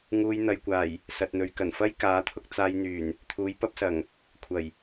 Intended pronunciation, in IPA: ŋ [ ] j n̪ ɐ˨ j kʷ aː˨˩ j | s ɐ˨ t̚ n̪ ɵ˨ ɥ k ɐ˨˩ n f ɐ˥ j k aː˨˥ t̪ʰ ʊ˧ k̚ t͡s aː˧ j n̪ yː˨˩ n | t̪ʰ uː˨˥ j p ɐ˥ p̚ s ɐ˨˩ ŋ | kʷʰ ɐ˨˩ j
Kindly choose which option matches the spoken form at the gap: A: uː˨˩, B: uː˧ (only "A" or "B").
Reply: B